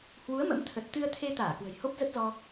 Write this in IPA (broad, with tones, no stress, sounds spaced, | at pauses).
h w u˨˦ ə̯ m ə̰˧˥ m t̪ʰ ə˨˩ t̚ t̪ ɨ˧ ə̯ t̪ʰ e˧ t̪ aː˧˩ k w ə̤˨˩ j h o˦˥ p̚ z ə˦˥ t̚ z ɔ˧